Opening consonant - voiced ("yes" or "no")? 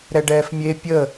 yes